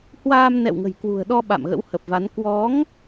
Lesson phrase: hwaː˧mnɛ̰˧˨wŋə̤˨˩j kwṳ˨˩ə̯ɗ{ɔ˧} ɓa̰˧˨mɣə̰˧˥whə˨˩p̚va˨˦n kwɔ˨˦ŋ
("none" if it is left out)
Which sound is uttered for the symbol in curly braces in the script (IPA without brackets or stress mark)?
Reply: ɔ˧